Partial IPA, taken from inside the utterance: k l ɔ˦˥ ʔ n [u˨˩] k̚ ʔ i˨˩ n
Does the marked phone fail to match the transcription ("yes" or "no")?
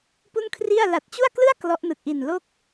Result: yes